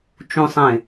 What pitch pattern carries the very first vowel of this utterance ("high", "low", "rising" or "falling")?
low